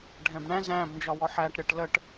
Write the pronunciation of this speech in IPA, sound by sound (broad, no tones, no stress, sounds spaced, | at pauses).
ɖʱ ɛ̃ b ɳ æ̃ z æ̃ b n d͡ʒ ɒ w ɔ ħ æ ʈ ɾʲ ʌ ʈ l ə ʈ